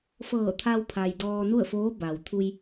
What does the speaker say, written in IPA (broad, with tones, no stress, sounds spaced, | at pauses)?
f ɤː˧˩ t̪ʰ a˧ w pʰ a˩ j d ɔː˧ n u˥˨ ə̯ f oː˧˥ b a˩ w t̪ʰ u˧ j